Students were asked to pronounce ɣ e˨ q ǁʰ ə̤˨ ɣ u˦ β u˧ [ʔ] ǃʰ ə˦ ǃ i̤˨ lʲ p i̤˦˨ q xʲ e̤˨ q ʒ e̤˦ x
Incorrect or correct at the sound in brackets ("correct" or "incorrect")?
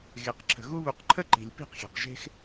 incorrect